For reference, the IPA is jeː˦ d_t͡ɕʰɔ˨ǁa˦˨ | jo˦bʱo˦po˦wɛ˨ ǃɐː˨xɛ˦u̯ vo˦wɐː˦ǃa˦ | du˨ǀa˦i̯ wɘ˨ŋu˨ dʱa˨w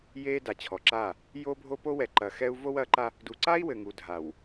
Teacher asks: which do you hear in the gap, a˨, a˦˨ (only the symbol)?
a˨